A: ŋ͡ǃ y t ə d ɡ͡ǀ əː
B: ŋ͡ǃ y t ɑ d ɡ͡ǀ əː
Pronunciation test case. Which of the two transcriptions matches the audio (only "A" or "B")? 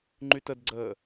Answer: A